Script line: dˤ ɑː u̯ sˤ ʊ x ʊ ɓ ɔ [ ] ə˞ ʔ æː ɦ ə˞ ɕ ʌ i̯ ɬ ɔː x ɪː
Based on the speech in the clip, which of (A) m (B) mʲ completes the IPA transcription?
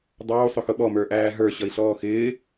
A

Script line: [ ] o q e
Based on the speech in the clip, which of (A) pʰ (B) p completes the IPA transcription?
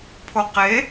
A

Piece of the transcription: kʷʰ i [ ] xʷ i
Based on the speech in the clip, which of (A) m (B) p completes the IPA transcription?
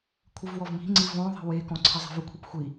B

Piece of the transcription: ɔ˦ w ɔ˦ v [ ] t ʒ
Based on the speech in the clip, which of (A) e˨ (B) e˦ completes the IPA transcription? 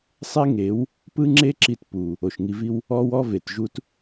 A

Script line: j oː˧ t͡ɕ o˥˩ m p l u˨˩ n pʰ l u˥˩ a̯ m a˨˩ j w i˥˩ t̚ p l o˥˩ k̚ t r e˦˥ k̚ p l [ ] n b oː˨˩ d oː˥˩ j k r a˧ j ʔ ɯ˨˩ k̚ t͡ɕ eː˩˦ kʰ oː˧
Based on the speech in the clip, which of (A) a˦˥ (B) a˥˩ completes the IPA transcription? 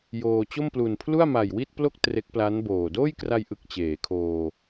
A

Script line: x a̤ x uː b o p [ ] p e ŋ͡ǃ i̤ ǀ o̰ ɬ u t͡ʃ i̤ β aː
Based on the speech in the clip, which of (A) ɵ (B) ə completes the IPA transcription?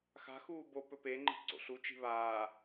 A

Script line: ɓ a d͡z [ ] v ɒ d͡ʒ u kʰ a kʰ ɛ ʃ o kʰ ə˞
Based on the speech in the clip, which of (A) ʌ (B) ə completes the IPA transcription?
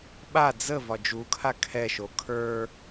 B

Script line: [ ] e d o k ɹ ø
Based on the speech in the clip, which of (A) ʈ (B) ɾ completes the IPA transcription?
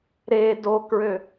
B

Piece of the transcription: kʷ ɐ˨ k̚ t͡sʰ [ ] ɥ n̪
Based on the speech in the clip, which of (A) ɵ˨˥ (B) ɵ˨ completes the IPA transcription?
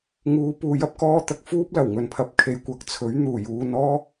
A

